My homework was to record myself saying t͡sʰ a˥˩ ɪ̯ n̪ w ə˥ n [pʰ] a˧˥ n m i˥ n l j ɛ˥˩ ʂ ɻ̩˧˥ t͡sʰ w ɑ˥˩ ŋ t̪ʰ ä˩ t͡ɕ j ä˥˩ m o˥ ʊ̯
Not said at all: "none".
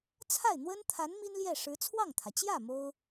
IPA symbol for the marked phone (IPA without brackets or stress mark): t̪ʰ